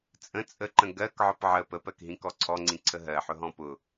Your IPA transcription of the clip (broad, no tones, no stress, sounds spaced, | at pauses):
t͡sʼ ə̃ t͡sʼ ə ǃ ə̃ ɡ ɜ k ʕ ɔ p ʕ ə p ə p ɜ k ɦ ĩ k ɔ ǀʰ ɔ ŋ͡ǀ ĩ ǀʰ ə ɦ ɜ ħ ʊ ɦ ɔ̃ p ʊ